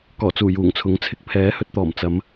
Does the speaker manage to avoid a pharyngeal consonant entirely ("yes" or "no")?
yes